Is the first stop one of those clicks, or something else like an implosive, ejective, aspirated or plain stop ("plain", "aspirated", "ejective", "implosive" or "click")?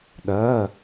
implosive